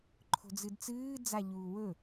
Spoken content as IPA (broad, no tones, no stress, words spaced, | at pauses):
ǃʰo̤d͡zɨdt͡sɨː d͡zaʎuːwɵ